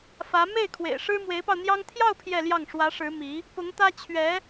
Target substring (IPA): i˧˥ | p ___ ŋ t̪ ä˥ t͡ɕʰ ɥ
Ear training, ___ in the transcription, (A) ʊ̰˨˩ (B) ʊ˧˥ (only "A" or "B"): B